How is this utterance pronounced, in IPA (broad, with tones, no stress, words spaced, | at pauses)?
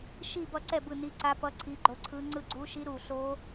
ʃi˥˩bʌ˥˩ǀɛ˥˩ bɯ˥˩ni˧˥ǀa˧˥pʌ˧˥ ǀʰi˧˥ɡ͡ǃo˧˥ǀʰɯ˧˥ ŋ͡ǀɯ˥˩ ɡ͡ǀu˧˥ʃi˧˥ ɾu˨˩ ɬo˧˥